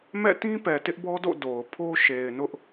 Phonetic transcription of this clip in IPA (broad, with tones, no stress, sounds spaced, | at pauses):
m ɛ̰˦˨ t ĩ˦ p ɛ˨ t ɪ˦ ʔ b ɔ˦ d o̰˦˨ d o˨ ʊ̯ pʰ o˦ ʃ e˨ ɪ̯ n ʊ˦ ʔ